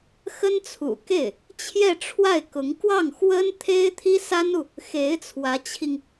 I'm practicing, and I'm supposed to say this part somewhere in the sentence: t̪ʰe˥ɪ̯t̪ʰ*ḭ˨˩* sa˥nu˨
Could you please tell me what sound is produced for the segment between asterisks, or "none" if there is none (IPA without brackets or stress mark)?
i˥